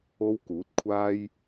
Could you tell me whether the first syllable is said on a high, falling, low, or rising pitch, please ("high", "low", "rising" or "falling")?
high